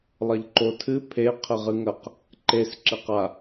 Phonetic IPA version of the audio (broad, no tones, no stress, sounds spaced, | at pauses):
lˠ ɐ ʎ ǃ o tʰ ɨ pʰ e qʰ ɘ ʁ ɨ ŋ ɐ q | ǃ e s ǁ ɘ q a